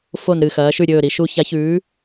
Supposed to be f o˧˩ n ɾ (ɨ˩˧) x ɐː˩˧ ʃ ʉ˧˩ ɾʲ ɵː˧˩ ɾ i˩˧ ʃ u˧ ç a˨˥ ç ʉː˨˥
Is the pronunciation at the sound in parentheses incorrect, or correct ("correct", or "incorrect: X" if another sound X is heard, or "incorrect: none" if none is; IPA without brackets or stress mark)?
incorrect: ɨ˧˩